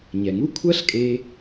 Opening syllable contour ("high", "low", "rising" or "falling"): low